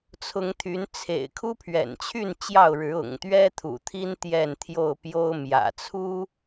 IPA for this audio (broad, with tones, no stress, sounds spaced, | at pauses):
t͡sʰ ʊ˨˦ ŋ t̪ʰ y˨˦ n t͡sʰ ḛ˨˩ ɪ̯ kʰ u˦ pʰ ɥ ɛ̰˨˩ n t͡ɕʰ y˥˨ n t͡ɕ j ɑ˥˨ ʊ̯ ɻ ɻ̩˨˦ ʊ̰˨˩ ŋ t̪ ɥ ɛ˦ t̪ʰ ṵ˨˩ t̪ʰ i˦ n t̪ j ɛ˥˨ n t̪ʰ j o˥˨ ʊ̯ p j o˦ ʊ̯ m j ä̰˨˩ t͡sʰ u˦